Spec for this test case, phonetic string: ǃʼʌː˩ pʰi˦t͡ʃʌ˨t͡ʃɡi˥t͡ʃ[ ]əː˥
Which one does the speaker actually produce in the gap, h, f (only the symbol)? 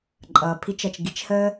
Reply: h